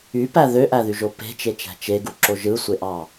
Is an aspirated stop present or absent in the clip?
absent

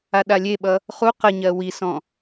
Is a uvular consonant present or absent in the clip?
present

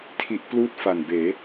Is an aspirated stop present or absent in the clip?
present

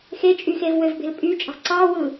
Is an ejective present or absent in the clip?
present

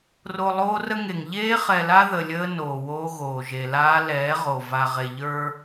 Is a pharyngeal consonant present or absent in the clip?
absent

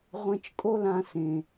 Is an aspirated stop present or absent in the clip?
absent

